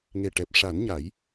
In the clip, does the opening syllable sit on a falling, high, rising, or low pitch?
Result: low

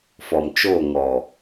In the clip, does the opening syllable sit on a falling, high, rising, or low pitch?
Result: low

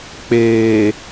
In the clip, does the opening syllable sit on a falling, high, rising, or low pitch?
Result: low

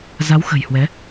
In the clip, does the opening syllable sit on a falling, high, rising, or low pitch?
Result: rising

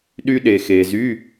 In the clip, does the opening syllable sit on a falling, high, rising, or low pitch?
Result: high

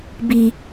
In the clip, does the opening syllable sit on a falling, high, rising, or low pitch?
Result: low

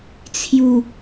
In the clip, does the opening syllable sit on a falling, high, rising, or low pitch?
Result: low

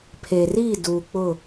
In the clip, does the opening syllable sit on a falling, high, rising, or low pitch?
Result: low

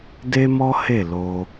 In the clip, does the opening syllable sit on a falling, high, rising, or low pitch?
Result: high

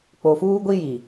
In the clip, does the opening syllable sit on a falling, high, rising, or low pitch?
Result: low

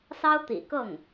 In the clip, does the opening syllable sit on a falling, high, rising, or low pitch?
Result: high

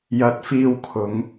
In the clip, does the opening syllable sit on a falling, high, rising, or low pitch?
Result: rising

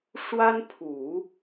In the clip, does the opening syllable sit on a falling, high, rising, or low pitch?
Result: high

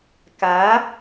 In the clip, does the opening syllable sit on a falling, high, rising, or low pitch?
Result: rising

